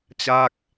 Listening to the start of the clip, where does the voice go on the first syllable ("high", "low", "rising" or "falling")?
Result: falling